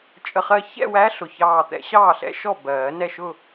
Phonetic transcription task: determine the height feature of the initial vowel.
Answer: mid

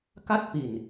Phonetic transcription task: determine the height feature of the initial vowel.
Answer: low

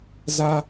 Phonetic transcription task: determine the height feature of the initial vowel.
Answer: low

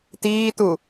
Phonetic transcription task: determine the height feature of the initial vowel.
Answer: high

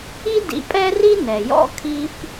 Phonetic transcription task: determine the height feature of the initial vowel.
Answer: high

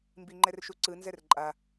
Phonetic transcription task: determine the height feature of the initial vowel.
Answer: high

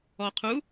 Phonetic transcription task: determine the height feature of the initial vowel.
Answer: mid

